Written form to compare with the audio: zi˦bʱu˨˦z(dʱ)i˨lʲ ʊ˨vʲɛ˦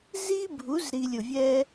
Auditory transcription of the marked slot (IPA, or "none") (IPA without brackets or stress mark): ɾ